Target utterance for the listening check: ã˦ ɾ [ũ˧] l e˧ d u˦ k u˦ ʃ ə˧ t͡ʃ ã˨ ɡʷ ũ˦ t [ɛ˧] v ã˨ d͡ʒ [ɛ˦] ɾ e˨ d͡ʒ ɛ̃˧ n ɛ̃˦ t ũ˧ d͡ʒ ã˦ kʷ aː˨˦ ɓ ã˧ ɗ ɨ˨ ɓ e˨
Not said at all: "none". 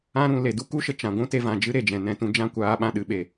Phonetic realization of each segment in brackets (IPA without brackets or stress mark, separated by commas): ũ˧, e˧, ɨ˦